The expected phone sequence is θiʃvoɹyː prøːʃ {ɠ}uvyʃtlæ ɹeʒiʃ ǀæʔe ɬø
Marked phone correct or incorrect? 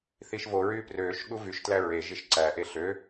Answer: correct